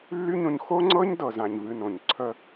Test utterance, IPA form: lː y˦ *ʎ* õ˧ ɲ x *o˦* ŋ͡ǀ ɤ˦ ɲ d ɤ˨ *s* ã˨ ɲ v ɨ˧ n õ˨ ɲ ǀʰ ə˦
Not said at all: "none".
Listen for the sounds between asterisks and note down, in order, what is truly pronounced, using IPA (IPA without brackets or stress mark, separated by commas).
ɲ, o˦, z